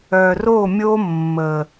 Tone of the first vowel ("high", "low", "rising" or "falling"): low